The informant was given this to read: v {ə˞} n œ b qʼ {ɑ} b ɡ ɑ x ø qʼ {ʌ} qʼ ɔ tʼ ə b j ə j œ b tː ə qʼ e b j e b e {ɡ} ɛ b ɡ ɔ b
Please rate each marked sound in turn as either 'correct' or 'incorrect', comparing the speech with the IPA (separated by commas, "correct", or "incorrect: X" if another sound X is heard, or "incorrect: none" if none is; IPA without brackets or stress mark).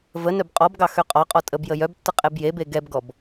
incorrect: ə, incorrect: ɔ, incorrect: ɒ, correct